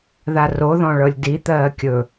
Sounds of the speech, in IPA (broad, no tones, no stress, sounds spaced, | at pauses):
ð a r o ð ɔ̃ ɭ ɤ lʲ d i t̪ ɜː kʲ ɵ